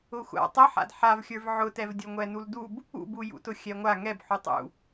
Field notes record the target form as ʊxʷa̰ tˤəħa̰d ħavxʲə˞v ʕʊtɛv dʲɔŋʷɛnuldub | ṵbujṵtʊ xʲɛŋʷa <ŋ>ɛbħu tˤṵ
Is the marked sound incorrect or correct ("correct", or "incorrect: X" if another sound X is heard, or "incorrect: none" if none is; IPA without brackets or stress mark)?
correct